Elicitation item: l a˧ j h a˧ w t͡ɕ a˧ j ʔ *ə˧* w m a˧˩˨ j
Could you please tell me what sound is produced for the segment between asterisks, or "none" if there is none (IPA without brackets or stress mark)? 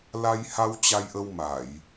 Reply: ə˧